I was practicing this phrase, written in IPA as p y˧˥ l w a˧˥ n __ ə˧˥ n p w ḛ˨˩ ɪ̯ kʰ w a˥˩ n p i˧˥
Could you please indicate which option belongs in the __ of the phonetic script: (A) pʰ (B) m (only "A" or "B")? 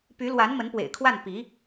B